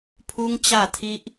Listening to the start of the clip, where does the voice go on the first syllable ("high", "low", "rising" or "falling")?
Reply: high